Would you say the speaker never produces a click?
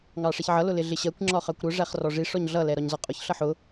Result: no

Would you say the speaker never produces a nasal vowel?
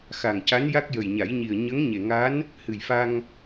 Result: yes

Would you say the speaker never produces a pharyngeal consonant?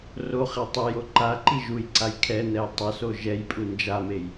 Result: yes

